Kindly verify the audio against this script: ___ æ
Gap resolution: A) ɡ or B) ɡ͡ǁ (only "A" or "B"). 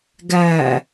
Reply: A